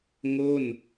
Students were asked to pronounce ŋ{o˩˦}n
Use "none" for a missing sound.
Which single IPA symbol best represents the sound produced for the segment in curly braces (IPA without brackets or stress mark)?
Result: o˥˩